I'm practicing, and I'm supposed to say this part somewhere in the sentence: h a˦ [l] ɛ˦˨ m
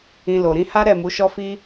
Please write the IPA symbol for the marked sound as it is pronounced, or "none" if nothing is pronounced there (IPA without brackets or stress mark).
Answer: ɾ